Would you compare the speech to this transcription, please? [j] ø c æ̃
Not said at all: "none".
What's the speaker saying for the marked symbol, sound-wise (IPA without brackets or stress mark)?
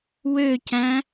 w